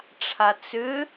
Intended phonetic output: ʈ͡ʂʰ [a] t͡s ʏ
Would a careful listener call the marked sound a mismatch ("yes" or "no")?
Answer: no